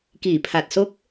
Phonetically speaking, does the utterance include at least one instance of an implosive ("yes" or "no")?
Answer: no